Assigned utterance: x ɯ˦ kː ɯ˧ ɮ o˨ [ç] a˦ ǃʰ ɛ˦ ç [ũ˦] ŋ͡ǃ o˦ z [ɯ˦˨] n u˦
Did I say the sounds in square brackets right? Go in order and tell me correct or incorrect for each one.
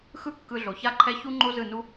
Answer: correct, incorrect, correct

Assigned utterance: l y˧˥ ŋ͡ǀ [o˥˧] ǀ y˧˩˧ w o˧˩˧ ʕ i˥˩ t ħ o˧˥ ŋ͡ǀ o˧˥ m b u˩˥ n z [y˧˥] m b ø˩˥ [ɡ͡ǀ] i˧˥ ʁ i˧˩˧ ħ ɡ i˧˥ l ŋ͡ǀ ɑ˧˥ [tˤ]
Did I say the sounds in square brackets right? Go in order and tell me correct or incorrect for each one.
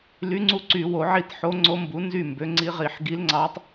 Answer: incorrect, incorrect, incorrect, correct

